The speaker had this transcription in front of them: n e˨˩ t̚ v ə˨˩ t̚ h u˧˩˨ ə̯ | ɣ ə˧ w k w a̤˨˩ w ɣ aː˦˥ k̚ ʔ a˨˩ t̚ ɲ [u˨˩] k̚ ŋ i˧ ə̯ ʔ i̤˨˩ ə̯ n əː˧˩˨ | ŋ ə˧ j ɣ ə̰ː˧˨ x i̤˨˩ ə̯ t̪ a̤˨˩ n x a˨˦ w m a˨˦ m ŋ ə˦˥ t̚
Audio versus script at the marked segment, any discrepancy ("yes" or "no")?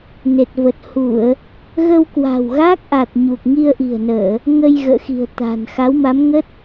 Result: no